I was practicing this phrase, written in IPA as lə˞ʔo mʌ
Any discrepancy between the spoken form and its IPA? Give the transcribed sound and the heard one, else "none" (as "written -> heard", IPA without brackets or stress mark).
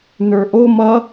l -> n